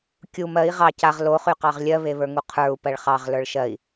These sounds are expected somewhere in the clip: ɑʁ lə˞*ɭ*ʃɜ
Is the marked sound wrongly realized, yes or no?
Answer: no